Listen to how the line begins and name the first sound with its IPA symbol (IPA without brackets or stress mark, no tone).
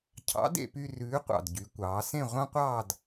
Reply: cʰ